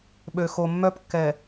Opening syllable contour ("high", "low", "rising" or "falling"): low